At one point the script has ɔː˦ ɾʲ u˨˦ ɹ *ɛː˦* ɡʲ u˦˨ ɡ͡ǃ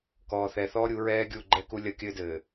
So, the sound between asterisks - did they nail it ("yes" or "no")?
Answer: yes